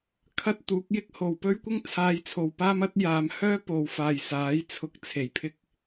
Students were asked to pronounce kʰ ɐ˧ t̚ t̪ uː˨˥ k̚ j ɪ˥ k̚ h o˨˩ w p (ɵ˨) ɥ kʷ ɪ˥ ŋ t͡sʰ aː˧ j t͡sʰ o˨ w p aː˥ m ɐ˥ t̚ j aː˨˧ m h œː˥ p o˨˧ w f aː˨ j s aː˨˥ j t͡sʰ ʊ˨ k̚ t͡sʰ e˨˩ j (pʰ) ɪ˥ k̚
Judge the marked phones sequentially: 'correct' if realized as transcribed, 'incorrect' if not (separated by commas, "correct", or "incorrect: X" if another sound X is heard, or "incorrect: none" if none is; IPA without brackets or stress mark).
incorrect: ɵ˥, correct